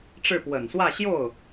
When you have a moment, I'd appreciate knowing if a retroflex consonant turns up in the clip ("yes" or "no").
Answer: yes